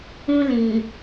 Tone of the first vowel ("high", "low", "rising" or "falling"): high